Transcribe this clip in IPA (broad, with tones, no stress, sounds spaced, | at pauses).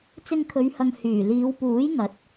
t͡s ɪ˧ ŋ kʰ ɵ˨˧ ɥ h ɐ˨ ŋ h yː˨˩ l iː˨˧ w p uː˨˥ j ŋ ɐ˨˥ t̚